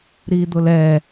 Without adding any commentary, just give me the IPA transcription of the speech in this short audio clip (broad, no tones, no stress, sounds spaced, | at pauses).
ɾ i d̪ ʊ l ɛ